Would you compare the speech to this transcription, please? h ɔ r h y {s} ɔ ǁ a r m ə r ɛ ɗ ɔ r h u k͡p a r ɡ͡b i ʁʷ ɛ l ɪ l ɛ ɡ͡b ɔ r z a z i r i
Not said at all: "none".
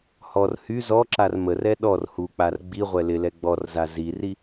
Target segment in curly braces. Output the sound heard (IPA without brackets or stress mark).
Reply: z